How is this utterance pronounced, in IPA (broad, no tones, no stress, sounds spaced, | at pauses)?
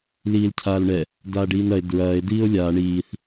l iː l cʰ aː l ɳ ɛ | d aː ɖ iː n ɐ e̯ d ɹ ɐː e̯ d iː o̯ lʲ aː ɳ iː θ